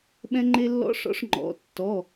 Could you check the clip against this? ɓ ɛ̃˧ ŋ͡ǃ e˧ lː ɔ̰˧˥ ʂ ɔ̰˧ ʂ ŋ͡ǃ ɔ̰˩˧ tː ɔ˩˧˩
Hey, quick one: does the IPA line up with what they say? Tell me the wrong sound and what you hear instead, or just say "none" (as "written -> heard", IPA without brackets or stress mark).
none